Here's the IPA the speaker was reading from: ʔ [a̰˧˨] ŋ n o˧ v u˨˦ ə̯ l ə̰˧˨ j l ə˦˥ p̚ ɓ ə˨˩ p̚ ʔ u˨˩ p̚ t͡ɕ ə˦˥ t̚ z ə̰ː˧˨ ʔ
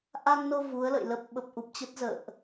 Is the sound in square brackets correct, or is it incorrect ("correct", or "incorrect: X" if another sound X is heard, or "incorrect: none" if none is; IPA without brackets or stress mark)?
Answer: incorrect: a˧